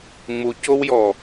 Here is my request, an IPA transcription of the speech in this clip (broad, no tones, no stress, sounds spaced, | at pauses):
ŋ͡m u c o w j ɔ